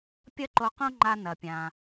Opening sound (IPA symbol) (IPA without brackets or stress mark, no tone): pʲ